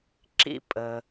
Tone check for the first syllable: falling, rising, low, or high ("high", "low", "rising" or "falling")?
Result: high